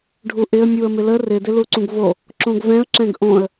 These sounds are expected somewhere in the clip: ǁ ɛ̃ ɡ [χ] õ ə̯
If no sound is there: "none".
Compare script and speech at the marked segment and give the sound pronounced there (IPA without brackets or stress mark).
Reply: ʔ